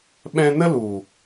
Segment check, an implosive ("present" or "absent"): present